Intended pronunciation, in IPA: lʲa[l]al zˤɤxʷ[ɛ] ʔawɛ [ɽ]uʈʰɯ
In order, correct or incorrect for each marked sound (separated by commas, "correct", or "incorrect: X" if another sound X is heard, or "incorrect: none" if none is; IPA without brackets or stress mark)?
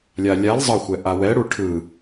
incorrect: lʲ, correct, correct